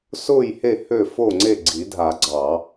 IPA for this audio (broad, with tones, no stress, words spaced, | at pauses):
sʊː˥˨jhe˥˨ hø˥˨fo˥˨ŋ͡ǀe˥˨ ɡ͡ǀi˨˩˦dʱa˨˩˦ ɡ͡ǀɑ˨˩˦